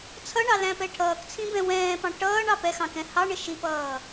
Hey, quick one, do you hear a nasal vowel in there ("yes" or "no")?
yes